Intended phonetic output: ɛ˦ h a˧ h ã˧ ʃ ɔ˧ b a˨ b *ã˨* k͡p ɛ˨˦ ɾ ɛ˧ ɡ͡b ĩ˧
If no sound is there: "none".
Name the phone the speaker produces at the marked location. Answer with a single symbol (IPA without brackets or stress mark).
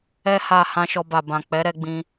ã˨